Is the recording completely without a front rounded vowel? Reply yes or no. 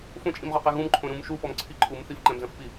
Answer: yes